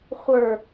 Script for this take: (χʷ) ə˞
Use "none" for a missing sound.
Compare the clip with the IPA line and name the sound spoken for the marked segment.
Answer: χʷ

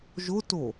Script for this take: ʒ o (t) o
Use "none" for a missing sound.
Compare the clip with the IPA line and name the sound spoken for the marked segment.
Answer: t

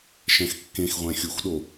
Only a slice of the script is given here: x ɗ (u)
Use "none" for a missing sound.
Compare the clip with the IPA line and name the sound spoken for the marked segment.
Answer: o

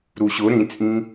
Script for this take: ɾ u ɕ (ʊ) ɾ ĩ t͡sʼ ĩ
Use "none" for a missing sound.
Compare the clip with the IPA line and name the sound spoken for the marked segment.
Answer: ʊ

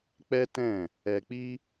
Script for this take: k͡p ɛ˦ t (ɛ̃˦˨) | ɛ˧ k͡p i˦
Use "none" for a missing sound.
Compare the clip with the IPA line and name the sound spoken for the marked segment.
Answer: ɛ̃˦˨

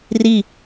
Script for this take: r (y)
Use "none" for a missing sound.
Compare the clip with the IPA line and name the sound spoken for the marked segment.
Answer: i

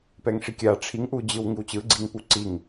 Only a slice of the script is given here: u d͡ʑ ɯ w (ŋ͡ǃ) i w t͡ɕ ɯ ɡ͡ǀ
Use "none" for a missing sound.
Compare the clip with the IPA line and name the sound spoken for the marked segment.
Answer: ŋ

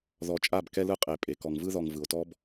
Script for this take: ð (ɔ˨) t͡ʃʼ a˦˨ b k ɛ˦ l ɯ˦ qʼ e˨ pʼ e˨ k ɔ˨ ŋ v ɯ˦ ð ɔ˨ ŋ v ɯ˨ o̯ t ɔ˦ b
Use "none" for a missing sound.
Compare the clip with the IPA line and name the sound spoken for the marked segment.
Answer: ɔ˨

